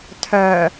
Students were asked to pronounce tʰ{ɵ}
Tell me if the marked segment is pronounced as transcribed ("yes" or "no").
no